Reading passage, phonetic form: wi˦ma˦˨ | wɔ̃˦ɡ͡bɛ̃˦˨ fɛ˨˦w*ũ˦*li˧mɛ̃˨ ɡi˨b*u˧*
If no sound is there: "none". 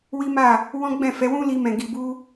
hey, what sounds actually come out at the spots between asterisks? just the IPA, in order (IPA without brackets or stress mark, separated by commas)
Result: ũ˦, u˧